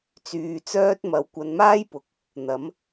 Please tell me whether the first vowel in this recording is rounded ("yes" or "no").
yes